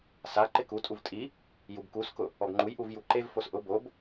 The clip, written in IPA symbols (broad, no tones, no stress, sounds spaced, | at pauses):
s a ǃ ɪ k u tʼ u v tʼ i | j u b k u s k ʊ | ɔ ɡ ŋ͡ǃ u j ʔ u v j u ǃ e v f o s ʔ ʊ b o b